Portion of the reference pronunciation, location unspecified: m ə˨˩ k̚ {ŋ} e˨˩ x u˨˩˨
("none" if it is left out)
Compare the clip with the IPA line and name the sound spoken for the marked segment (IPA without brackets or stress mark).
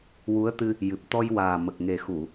ŋ